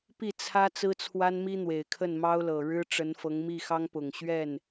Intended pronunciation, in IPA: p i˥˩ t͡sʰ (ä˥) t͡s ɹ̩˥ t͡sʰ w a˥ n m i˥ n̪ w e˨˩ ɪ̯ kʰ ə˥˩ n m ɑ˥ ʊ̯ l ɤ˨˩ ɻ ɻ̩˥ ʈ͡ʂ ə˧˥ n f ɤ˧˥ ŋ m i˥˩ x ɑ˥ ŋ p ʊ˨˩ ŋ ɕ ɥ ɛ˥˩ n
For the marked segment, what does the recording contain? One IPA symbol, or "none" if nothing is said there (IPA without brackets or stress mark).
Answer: ä˥